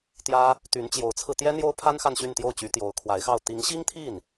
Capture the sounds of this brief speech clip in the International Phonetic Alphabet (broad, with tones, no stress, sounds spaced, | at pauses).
t̪ j ä˥ | t̪ y˧˥ n t͡ɕ j o˧˥ ʊ̯ t͡sʰ ɹ̩˧ t̪ j ɛ˥ n̪ j o˥ ʊ̯ pʰ a˥ n x a˥˧ n ɕ y˥˧ n t̪ j o˥˩ ʊ̯ t͡ɕ y˧˥ t̪ j o˧˥ ʊ̯ kʰ w a˧˥ ɪ̯ x ɑ˥˩ ʊ̯ t̪ i˧˥ ŋ ɕ i˥ ŋ t̪ʰ i˥˩ n